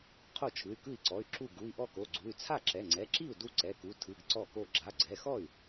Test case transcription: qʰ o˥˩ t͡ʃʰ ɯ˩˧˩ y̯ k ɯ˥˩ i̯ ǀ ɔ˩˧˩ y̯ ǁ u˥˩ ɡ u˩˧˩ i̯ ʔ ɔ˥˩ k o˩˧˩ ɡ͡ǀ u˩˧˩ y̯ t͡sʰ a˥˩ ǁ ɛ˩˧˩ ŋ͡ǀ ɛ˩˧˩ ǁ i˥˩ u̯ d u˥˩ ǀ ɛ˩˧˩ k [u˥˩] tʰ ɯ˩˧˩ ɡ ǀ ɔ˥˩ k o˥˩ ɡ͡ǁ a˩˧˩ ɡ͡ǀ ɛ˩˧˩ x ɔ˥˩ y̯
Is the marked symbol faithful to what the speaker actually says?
no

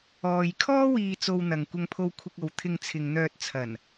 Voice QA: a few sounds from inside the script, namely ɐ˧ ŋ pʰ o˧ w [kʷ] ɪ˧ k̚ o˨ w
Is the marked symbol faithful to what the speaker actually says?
no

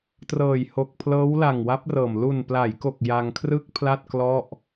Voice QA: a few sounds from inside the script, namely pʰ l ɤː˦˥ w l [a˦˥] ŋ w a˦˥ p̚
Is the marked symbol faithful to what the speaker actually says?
no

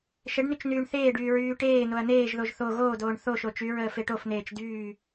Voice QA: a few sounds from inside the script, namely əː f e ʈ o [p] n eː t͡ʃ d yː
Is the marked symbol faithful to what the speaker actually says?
no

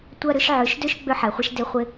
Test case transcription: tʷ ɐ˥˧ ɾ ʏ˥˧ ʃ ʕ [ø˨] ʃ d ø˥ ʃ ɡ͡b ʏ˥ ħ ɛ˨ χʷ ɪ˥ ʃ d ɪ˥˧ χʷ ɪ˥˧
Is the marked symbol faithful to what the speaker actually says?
no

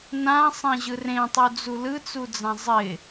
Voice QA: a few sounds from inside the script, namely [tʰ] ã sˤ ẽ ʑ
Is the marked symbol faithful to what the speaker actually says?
no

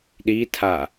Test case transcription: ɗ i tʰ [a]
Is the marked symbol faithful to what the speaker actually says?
yes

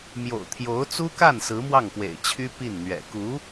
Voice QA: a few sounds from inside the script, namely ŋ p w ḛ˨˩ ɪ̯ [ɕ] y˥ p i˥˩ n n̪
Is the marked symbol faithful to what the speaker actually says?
no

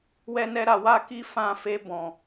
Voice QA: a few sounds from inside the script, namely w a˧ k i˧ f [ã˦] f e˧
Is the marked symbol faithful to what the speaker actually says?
no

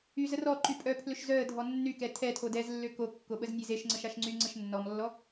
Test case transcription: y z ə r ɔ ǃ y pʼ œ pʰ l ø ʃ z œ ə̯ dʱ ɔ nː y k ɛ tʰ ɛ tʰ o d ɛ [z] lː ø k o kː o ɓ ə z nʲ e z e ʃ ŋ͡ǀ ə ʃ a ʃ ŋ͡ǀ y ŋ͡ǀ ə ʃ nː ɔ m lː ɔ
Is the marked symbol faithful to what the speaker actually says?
yes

